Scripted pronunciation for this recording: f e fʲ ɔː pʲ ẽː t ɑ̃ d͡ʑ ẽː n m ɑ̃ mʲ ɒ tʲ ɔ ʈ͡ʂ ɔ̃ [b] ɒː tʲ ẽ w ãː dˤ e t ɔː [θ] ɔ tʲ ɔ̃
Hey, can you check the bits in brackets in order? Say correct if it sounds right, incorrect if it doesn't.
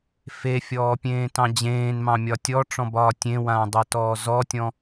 correct, incorrect

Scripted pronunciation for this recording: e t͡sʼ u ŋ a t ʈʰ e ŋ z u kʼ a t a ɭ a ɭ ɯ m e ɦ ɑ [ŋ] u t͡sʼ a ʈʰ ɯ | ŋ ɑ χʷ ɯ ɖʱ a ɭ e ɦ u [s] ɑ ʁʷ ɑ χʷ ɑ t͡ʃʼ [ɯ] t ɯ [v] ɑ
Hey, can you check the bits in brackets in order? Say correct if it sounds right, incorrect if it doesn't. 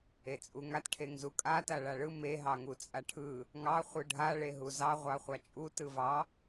correct, incorrect, incorrect, correct

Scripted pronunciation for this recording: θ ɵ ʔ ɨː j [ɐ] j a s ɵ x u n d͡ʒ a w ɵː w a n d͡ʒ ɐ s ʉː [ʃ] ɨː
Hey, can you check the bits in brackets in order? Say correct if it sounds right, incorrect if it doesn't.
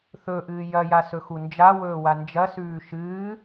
correct, correct

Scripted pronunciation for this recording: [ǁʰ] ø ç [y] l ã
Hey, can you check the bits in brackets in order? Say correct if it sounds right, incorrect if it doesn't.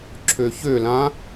correct, incorrect

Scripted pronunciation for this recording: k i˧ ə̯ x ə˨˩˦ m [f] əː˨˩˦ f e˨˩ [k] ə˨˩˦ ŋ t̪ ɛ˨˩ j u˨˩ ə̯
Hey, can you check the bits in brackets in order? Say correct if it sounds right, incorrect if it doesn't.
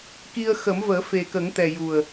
incorrect, correct

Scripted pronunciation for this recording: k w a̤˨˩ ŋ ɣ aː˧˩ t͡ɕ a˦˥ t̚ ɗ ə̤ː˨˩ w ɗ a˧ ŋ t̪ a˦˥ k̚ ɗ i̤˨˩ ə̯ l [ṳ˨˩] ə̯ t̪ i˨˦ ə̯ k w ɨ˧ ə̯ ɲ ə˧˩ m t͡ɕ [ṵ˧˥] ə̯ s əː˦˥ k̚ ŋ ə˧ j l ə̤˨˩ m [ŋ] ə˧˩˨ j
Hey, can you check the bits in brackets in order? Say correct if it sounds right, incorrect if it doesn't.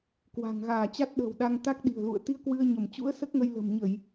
incorrect, correct, incorrect

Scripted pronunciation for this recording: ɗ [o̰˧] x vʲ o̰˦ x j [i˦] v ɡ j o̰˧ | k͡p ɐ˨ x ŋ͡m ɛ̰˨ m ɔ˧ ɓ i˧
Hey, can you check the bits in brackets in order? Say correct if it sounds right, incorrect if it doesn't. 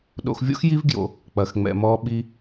correct, correct

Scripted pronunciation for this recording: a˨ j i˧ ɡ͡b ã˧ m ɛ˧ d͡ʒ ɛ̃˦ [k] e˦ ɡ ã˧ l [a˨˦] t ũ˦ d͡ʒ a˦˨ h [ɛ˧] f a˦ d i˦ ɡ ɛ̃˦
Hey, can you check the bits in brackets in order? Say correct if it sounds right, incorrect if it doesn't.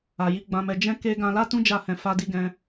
correct, incorrect, incorrect

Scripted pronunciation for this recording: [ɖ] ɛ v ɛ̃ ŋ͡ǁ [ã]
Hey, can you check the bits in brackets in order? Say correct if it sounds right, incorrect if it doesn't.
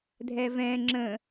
incorrect, incorrect

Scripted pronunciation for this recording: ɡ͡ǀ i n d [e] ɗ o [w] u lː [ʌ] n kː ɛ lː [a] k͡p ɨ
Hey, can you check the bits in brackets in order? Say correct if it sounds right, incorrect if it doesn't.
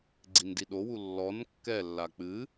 incorrect, correct, incorrect, correct

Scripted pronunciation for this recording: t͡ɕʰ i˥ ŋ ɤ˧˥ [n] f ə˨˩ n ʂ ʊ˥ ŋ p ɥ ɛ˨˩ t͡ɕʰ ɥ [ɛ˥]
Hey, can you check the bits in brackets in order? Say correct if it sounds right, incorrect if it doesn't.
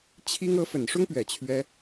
incorrect, correct

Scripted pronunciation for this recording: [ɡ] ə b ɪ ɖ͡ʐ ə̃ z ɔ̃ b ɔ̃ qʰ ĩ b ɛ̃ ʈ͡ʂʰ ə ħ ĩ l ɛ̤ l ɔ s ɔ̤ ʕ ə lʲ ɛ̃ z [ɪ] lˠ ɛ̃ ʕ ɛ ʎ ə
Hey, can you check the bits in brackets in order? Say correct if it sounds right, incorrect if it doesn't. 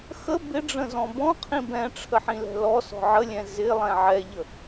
incorrect, correct

